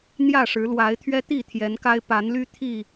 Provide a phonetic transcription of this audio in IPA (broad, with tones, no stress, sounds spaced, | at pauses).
n̪ j ä˥˨ ʂ ɻ̩˨˦ l w a˨˦ ɪ̯ t̪ʰ ɥ ɛ˦ t̪ i˥˨ t̪ʰ j ɛ˨˦ n k a˦ ɪ̯ p a˨˦ n l y˦ t̪ʰ i˥˨